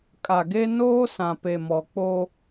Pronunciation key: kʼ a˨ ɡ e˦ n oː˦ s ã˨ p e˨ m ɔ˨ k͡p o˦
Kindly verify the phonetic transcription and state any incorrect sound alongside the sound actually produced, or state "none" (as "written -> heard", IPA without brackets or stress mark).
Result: none